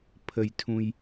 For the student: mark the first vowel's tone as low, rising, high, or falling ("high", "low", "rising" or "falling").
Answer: low